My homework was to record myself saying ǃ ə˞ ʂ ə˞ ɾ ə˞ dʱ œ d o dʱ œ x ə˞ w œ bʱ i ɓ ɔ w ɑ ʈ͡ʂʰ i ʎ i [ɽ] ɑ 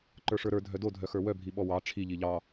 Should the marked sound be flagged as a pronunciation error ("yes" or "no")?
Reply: yes